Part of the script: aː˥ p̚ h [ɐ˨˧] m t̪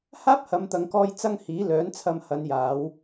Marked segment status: correct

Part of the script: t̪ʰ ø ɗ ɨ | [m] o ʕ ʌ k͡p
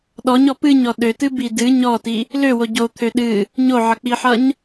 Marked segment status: incorrect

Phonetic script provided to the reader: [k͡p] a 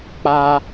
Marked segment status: correct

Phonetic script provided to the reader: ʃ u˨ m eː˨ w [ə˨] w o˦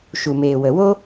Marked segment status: correct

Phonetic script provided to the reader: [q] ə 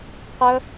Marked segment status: correct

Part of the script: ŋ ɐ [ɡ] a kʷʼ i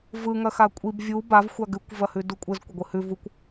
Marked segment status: incorrect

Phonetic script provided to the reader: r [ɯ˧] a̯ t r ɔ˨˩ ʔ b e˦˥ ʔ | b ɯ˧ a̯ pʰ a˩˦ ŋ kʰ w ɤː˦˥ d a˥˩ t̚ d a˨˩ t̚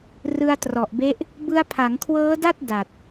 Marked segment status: correct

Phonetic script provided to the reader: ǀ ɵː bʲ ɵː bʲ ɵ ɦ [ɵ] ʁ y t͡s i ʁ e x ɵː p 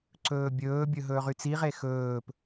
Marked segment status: incorrect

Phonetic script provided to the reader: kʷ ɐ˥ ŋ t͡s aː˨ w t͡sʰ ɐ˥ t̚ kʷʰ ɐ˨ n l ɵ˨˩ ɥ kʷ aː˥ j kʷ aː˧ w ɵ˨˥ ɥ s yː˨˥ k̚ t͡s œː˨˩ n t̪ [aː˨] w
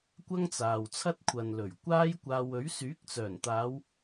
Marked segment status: incorrect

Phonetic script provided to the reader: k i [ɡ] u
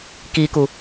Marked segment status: incorrect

